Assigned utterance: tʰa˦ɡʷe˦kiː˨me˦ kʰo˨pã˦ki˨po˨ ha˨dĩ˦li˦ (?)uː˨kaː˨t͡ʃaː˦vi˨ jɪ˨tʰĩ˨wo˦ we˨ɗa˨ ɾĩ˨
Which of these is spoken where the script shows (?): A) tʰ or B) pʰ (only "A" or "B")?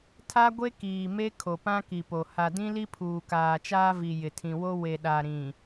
B